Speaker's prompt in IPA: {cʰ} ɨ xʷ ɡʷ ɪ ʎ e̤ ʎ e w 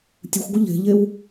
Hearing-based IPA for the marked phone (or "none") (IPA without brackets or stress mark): tʲ